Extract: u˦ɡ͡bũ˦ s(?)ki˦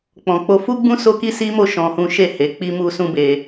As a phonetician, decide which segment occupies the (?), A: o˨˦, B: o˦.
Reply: B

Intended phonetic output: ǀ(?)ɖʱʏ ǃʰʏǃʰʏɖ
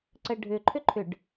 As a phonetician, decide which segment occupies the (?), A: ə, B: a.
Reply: A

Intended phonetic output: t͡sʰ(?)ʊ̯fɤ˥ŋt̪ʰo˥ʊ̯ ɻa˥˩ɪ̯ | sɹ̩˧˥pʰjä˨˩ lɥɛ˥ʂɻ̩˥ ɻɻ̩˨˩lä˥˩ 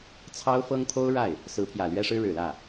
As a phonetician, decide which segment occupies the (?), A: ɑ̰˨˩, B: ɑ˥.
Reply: B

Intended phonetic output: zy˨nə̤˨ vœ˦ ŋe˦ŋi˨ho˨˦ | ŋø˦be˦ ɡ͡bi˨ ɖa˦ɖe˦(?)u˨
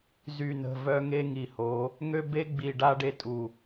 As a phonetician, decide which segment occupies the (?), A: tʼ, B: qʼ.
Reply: A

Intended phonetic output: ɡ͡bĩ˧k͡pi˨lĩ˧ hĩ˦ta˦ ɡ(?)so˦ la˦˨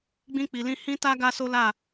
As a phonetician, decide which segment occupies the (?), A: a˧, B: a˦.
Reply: B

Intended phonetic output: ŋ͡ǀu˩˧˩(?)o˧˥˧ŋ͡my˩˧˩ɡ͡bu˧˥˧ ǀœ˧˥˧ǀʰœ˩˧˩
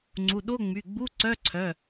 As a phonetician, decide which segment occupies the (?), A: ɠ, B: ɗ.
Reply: B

